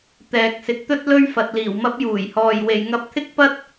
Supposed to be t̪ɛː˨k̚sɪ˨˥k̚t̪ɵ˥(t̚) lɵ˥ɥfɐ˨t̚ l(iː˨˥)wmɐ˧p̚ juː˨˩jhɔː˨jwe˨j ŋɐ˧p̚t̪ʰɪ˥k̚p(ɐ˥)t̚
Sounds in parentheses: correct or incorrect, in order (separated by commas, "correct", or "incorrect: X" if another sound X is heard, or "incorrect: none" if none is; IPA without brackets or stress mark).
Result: correct, incorrect: iː˨˩, correct